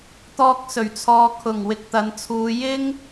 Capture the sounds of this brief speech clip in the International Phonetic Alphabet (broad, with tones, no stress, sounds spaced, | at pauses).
t̪ ɔː˧ k̚ s ɵ˨˩ ɥ t͡sʰ ɔː˨ kʰ ʊ˨˩ ŋ w ɪ˨ k̚ t̪ ɐ˨˧ n t͡sʰ uː˨˧ j ɪ˥ ŋ